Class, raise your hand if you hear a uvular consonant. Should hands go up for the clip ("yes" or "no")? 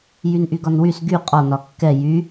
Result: yes